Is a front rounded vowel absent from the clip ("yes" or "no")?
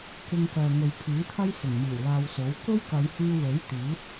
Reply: no